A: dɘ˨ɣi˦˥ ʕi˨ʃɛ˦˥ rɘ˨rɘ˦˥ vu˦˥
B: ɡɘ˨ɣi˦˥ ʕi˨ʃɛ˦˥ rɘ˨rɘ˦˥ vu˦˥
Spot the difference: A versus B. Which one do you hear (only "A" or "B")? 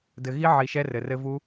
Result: A